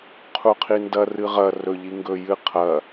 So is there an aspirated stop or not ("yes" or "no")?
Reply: yes